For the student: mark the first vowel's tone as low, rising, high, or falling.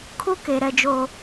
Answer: high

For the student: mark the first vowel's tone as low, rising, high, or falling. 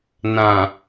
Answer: low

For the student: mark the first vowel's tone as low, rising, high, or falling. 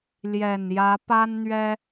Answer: low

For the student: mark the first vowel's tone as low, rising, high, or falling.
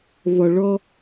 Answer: low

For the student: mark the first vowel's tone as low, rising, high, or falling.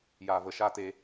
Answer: low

